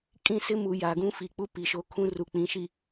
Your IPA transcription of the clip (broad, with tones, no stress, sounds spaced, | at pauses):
kʼ ĩ˦˨ s ɪ˦ m u˨ j a˨ ɡ ũ˦ f i˨ k͡p u˦ p i˨ ʃ o˦ kʰ ũ˦ r u˨ k͡p ĩ˨˦ ʃ i˨